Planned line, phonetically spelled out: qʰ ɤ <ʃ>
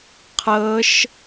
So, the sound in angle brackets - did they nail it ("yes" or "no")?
yes